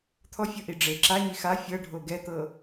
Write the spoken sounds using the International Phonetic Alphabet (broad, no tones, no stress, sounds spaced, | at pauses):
t̪ʰ ɔ fʲ ɤ ʔ i ɖ͡ʐ e ǁ a ɲ i x a fʲ ɤ ɖʱ o ɡ ɛ t̪ ɤ